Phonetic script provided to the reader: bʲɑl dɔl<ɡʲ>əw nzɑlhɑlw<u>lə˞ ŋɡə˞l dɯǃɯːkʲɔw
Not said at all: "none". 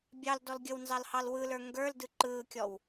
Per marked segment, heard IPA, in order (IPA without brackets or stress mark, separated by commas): ɡʲ, ɯ